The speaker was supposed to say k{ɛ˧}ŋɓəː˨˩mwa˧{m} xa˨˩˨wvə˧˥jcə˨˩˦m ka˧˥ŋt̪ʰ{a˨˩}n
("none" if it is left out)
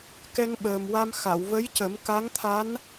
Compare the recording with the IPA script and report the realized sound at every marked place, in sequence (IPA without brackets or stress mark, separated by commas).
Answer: ɛ˧, m, a˧˥